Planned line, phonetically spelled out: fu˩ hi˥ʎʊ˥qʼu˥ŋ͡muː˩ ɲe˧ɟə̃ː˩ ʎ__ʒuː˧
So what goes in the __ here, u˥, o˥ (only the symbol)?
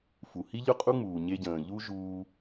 u˥